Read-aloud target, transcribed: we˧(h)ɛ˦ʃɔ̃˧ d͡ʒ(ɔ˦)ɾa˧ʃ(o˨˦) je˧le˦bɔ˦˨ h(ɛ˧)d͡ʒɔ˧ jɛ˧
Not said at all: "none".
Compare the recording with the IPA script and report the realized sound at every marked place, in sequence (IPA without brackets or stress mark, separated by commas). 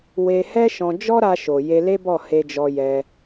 h, ɔ˦, o˨, e˧